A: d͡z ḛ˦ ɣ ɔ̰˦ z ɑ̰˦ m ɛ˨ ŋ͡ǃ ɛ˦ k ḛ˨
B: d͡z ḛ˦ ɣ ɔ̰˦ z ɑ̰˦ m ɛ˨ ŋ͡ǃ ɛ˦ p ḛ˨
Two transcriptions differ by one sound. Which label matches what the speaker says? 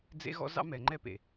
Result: B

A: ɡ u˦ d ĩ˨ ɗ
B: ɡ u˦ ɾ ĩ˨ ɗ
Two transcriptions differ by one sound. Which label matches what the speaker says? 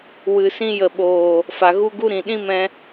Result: B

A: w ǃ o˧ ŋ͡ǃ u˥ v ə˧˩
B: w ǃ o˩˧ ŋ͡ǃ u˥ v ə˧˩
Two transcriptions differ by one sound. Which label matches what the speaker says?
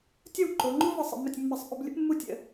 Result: B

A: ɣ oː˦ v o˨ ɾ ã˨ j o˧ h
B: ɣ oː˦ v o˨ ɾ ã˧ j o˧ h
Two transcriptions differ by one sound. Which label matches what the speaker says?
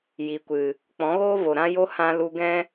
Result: B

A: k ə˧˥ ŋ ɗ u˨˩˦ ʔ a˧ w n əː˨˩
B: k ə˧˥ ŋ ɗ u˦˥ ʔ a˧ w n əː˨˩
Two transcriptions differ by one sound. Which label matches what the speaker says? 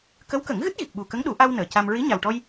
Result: A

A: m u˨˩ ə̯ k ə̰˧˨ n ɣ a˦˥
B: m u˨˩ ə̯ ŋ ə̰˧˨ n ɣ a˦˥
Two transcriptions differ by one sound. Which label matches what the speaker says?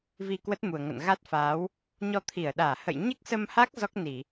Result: B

